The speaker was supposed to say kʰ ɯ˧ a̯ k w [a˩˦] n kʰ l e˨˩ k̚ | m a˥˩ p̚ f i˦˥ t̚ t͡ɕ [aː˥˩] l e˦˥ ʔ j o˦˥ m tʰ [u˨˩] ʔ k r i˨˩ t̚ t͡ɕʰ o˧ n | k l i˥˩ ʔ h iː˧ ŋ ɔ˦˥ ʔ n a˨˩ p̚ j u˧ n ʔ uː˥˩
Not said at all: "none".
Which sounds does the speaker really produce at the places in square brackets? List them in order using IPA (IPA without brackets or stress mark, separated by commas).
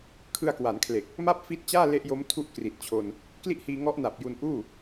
a˩˦, aː˥˩, u˥˩